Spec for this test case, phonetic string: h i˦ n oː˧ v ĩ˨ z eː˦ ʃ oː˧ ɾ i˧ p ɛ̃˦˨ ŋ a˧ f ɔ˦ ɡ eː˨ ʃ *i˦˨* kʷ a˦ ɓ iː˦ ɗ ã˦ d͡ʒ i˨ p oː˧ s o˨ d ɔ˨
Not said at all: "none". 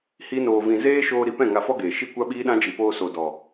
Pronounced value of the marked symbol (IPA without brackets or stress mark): i˦